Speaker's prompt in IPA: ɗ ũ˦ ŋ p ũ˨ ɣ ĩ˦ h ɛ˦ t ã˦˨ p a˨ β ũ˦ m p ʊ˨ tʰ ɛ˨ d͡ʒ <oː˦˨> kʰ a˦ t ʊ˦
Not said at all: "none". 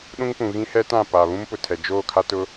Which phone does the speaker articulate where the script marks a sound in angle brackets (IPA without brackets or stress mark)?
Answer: oː˦˨